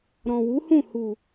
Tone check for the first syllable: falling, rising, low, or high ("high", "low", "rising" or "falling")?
low